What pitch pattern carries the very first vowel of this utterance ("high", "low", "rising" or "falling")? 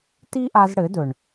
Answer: high